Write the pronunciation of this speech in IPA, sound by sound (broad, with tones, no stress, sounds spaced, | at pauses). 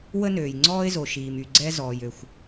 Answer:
w ə˥ n øː˩ j ŋ͡ǀ ɔː˥ ɪ̯ z o˩ ʃ iː˩ m y˩ ɡ͡ǀ ɛ˥ z ɔː˩ j ø˩ xʷ